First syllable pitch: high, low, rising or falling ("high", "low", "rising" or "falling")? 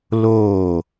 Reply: falling